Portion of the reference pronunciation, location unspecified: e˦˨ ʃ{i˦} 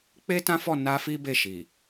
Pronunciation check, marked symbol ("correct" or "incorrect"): incorrect